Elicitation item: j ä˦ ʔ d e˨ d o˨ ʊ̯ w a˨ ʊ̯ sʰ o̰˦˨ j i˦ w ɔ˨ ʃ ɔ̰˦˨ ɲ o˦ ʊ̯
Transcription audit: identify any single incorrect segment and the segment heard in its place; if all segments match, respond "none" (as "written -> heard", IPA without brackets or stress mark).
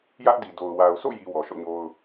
e˨ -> i˨